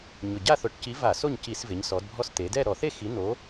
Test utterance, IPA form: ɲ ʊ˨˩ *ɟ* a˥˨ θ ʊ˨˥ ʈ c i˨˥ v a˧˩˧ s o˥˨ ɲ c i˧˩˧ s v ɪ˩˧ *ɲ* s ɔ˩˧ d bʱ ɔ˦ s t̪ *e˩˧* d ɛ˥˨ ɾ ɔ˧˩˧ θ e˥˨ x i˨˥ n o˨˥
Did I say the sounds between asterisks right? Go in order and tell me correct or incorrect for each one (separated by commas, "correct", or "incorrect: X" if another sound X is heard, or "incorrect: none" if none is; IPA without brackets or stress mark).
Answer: correct, correct, correct